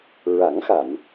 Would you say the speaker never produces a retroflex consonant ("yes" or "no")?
yes